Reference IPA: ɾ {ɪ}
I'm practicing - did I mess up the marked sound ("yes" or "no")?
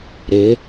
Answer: no